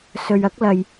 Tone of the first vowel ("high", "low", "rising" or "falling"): low